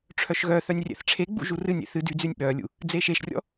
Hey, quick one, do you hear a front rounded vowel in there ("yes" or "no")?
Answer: yes